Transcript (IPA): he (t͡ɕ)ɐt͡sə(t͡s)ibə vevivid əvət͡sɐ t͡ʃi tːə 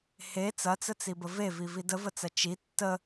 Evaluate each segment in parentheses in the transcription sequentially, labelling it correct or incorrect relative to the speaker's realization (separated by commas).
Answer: incorrect, correct